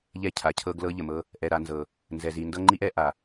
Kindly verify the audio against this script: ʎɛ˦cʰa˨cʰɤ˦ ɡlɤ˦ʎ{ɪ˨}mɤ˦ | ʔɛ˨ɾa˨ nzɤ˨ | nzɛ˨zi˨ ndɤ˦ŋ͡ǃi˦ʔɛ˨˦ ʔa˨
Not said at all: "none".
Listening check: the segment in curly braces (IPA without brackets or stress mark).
ə˨